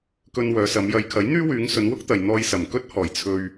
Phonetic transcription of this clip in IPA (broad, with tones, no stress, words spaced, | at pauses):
kɵ˧nwœː˨˧sɐ˨˧m jɐ˨˧jkʰɐ˨˥jn̪yː˥ wyː˨˧ŋsɵ˨˧n wʊ˥k̚t̪ɐ˨j n̪ɔː˧jsɐ˨˩mkɵ˥t̚hɔː˨˩j t͡sʰɵ˧ɥ